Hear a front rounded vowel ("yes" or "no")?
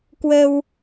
no